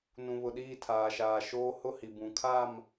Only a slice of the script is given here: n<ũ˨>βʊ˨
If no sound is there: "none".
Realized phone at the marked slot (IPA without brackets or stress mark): ũ˨